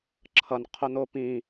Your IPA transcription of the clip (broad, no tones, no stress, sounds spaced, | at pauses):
ǁʰ ʌ n qʰ o n̪ o p ĩ